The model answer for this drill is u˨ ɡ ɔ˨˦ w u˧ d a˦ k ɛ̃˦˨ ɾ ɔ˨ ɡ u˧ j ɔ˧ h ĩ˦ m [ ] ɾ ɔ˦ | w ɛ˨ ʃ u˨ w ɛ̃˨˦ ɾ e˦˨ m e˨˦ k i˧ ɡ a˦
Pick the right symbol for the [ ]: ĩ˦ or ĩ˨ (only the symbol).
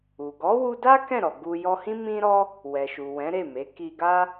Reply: ĩ˦